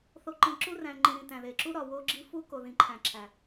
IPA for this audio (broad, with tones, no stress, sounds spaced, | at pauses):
θ o˨ ǃ ĩ˨ ǁ u˦ r æ̃˨ ŋ͡ǃ ĩ˨ ɾ ĩ˨ t æ̃˨ ð e˨ ǁ u˦ ɾ ɒ˨ w o˦ ɡ͡ǁ i˦ f u˦ k o˨ ð ĩ˨ ǃʰ æ̃˨ ǁʰ æ˨